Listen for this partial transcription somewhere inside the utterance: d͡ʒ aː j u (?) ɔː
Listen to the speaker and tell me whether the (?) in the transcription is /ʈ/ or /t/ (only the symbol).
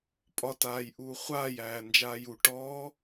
ʈ